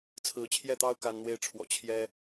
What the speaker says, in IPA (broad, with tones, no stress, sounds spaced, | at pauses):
t͡sʰ ɹ̩˧˥ t͡ɕʰ j ɛ˥˩ t̪ ɑ˥ ʊ̯ k a˥ n n̪ w e˥ ɪ̯ ʈ͡ʂʰ w ɔ̰˨˩ t͡ɕʰ j ɛ˥